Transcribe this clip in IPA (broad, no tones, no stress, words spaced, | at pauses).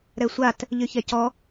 ɾɛsʷat | ʎyçɛcɔ